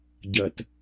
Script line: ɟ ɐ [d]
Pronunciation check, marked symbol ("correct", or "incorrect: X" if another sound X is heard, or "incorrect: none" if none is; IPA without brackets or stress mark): incorrect: t